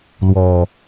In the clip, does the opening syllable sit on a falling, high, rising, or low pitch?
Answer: low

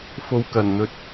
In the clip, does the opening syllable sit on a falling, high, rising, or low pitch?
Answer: rising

